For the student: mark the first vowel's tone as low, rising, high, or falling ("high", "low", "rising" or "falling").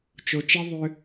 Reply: low